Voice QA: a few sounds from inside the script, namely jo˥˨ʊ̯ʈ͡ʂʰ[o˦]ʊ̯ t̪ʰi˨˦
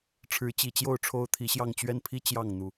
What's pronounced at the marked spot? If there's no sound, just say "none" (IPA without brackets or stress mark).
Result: o˦